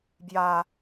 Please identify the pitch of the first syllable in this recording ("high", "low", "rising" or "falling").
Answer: low